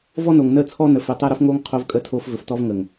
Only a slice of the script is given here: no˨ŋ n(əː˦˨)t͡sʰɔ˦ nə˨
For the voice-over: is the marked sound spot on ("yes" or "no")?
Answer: yes